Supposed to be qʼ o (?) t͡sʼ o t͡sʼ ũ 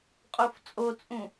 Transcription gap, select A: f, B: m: A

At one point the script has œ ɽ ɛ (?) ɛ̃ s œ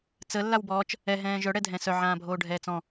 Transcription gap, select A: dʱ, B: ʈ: A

